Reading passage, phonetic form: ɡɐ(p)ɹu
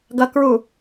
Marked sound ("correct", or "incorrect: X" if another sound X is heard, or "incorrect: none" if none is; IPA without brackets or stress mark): incorrect: k